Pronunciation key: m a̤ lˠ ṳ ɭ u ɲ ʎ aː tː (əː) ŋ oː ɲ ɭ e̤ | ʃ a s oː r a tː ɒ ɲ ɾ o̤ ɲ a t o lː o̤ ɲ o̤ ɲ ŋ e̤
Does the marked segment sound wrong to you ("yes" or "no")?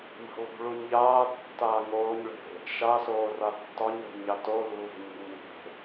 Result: yes